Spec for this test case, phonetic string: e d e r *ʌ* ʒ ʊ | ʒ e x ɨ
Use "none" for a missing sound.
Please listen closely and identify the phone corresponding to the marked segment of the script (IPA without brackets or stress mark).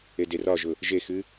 ɒ